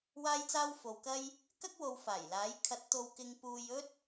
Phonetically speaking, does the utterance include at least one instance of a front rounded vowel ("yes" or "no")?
no